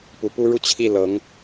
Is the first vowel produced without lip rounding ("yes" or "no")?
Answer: no